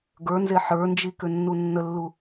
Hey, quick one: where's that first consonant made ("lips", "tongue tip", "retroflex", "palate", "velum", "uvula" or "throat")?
velum